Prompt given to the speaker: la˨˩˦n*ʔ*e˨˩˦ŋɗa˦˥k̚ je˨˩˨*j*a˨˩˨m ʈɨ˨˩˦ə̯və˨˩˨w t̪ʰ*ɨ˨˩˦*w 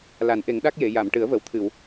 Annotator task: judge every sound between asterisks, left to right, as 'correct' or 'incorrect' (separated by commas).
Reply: correct, correct, incorrect